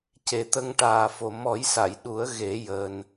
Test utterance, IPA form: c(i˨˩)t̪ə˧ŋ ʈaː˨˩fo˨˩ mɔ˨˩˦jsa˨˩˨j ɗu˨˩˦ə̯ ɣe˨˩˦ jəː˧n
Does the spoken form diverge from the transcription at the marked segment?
yes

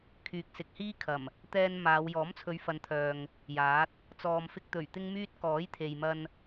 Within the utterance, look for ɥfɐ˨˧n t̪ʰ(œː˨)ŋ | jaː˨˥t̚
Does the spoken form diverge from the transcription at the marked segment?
no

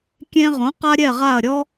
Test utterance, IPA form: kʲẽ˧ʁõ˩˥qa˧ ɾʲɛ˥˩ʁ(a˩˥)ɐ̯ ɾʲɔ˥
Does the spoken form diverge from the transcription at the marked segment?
yes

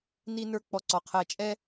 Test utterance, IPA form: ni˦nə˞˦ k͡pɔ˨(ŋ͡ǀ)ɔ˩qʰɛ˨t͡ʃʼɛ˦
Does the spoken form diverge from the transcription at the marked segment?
yes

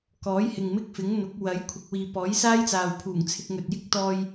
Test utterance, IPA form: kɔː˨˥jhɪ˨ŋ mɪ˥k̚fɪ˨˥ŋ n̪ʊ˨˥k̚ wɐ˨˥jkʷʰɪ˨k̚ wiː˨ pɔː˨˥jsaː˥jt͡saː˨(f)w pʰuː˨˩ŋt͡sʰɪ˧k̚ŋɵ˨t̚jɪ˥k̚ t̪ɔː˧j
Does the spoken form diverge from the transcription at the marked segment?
yes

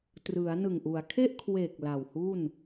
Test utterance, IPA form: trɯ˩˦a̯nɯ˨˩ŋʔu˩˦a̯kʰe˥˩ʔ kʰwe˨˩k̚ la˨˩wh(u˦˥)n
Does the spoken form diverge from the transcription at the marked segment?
yes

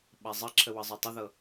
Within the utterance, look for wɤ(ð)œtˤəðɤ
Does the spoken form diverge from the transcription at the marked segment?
yes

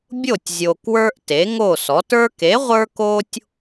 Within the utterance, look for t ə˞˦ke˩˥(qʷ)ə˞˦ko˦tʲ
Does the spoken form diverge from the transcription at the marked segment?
yes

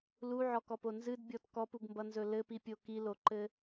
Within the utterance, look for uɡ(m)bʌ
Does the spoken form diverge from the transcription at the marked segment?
no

